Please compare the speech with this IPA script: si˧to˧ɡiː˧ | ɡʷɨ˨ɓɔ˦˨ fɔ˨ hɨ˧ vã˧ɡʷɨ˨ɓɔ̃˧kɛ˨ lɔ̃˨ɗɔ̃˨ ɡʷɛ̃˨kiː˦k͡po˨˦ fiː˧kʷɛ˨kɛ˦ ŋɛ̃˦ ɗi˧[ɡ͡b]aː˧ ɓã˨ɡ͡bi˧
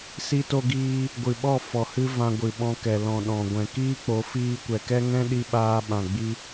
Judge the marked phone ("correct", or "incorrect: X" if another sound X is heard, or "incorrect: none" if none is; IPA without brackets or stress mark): incorrect: ɓ